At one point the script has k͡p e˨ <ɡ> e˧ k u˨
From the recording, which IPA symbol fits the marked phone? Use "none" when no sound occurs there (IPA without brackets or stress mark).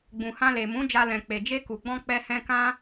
d͡ʒ